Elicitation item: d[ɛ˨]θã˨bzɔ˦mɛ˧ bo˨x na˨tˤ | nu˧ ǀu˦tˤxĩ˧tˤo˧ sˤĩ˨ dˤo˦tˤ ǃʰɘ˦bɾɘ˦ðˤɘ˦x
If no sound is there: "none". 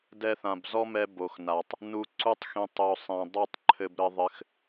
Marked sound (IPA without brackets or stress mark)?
ɛ˧